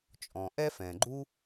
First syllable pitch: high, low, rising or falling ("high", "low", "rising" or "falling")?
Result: low